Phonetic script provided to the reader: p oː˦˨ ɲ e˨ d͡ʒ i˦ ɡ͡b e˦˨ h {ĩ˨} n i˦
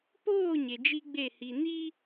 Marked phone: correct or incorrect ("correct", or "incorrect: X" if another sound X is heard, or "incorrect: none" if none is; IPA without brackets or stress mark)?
incorrect: i˨